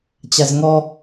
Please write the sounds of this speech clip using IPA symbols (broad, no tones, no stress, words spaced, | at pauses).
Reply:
t͡ɕazŋɔ